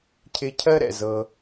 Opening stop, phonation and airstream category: aspirated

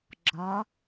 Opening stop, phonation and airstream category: click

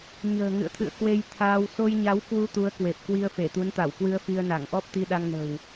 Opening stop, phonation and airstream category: aspirated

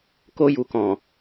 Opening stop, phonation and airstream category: plain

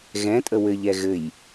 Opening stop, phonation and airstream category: ejective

